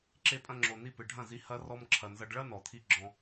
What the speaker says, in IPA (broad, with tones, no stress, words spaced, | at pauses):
ǁe˧pʼɐ̃˧ŋ͡ǁo˨ ni˧pɨ˨ɖʱɐ̃˦˨zi˧ hɐ˧ rɔ˧mǁʰɐ˨nzɐ˧ɖ ɭɐ˦ nɔ˨t̪ʰi˧ ɡ͡ǁɔ̃˧